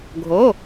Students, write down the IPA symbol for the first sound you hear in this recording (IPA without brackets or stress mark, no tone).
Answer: ɡʱ